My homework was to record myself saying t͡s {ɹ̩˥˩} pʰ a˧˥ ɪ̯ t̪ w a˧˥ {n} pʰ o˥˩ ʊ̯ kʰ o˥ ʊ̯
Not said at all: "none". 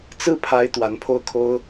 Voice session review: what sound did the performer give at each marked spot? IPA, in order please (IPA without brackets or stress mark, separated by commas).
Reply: ɹ̩˥˩, n